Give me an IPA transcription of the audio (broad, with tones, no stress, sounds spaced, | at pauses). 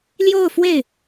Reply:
l j o˥˧ ʊ̯ f w e˥˩ ɪ̯